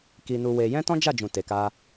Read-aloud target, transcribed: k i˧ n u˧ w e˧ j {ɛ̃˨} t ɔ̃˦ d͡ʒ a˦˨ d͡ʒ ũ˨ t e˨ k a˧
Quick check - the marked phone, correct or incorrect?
incorrect